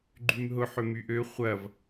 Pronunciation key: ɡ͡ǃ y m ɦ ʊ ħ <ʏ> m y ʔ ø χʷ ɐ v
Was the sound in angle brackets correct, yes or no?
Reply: yes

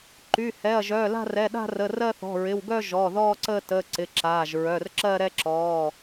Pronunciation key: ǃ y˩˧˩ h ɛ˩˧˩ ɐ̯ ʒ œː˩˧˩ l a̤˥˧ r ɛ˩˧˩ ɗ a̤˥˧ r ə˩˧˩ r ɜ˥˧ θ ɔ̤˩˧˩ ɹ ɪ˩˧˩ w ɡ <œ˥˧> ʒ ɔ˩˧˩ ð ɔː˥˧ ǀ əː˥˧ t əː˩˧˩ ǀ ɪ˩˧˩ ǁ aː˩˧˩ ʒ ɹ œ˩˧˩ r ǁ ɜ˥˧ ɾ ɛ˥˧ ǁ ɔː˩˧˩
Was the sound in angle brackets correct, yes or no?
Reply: yes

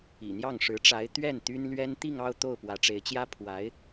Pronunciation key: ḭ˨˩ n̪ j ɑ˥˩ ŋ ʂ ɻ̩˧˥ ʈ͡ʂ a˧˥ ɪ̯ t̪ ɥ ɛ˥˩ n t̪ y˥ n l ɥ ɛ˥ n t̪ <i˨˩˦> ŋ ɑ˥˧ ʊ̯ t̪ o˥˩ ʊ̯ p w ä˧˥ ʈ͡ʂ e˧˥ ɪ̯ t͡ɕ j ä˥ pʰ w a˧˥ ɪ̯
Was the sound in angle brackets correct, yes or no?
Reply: no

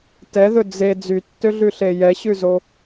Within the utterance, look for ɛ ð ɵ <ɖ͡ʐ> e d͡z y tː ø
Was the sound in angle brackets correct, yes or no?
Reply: no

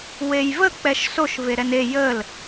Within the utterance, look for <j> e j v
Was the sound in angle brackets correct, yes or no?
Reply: no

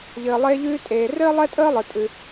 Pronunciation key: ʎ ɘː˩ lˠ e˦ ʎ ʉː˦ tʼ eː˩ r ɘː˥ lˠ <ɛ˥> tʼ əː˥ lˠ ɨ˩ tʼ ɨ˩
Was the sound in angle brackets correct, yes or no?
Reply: yes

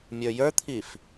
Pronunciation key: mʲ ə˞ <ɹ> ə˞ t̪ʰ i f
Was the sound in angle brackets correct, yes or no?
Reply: no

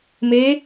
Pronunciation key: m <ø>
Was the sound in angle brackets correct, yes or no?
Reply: no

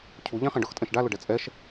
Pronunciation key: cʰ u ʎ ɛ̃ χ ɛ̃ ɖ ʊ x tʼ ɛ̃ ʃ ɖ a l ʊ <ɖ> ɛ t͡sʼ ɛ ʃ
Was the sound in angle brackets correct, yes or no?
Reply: yes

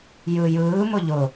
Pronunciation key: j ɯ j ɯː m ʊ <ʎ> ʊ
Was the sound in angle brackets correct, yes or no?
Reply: yes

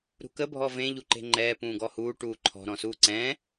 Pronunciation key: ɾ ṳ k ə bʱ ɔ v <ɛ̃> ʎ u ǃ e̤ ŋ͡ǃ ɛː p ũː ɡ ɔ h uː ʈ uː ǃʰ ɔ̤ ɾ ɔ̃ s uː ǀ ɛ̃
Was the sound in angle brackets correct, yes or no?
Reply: no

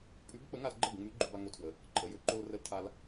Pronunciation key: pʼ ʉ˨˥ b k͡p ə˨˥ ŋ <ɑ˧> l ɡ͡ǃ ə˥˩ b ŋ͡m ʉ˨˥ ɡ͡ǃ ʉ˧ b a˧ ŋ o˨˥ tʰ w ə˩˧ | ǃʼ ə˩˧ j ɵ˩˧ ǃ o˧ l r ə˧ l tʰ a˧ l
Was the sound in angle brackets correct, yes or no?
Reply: no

